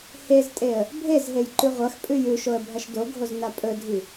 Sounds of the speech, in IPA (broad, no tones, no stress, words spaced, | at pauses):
heztʼeə̯ | bʱezɦejǃʉ ʁʷɐxpʼʉj ʉʃoə̯bʱɐʃ doɡʱozna pʼɵdʱi